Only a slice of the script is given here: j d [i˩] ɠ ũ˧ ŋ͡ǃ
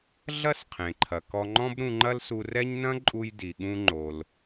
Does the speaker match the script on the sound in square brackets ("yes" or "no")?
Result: yes